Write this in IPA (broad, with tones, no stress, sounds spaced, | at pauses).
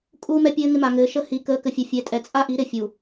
kʼ uː˦ m ɛ˦ pʲ ɘː˦ ŋ ɪ˦ m a˨ ŋ ɘː˨˦ ʃ ə˦ h i˨˦ k əː˨˦ k ɘ˨ fʲ ɘ˨ fʲ ɛ˨ tʼ ɛ˨ t͡sʼ a˦ ʔ i˨˦ ɾ ɪ˨ fʲ u˨